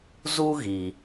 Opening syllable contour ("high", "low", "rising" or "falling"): high